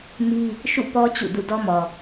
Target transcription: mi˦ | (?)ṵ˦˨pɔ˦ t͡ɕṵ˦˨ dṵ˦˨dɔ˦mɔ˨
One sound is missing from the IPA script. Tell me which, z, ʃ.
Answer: ʃ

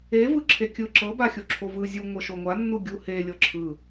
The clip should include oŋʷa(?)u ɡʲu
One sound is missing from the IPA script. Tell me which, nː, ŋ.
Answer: nː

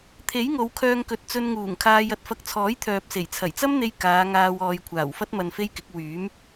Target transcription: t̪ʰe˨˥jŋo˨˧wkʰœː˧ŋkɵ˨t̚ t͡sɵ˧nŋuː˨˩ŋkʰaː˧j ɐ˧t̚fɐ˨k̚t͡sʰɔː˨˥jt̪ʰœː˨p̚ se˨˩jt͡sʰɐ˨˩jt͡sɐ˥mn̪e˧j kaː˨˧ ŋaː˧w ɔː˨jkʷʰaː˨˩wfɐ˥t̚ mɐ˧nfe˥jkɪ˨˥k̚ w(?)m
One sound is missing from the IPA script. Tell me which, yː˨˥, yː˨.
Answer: yː˨˥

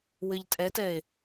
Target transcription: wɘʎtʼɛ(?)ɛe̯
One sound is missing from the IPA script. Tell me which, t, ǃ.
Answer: t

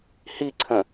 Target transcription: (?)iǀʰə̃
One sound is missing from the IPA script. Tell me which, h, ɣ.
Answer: h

